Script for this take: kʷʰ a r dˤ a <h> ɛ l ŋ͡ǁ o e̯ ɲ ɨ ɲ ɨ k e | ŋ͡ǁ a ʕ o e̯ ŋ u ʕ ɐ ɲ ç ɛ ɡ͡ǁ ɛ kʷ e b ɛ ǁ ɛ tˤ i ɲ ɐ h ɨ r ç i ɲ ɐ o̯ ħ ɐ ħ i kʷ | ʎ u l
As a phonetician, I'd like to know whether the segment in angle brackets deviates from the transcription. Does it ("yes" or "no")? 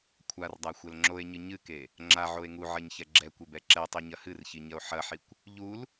yes